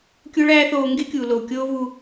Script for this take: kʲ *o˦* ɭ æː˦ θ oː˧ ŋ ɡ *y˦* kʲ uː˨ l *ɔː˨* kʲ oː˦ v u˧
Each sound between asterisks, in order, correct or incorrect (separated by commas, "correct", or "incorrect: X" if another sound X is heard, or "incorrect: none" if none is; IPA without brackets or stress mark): correct, incorrect: e˦, incorrect: oː˨